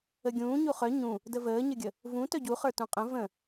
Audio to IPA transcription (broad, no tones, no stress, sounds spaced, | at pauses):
ə ɡʲ ũː ɲ u χ œ ɲ ũ | d ə v əː ɲ ə ɡʲ ə | v ũ t œ ɟ u χ ə˞ t ũ qʼ ə̃ v ə̃